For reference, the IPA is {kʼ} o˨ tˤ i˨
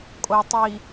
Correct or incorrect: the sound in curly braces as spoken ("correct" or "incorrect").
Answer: correct